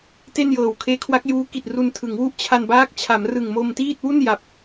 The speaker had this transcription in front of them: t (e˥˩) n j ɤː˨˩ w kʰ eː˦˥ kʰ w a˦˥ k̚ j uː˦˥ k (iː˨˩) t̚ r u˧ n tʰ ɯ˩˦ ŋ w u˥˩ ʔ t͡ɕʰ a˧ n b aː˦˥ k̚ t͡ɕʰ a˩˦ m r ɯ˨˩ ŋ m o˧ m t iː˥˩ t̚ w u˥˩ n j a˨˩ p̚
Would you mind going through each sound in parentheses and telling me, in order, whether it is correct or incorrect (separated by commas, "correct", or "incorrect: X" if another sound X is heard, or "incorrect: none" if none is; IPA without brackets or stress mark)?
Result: correct, incorrect: i˨˩